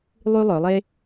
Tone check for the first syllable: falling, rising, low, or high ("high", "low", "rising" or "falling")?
high